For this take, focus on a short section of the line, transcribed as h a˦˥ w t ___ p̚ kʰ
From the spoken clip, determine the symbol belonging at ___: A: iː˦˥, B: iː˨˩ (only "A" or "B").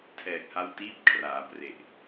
A